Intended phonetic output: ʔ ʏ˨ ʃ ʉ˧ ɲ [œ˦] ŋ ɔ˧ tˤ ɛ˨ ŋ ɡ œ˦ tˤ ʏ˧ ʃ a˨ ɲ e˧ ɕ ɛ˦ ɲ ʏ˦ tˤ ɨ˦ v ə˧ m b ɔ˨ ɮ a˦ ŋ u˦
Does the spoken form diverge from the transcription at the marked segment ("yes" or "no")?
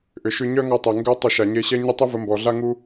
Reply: no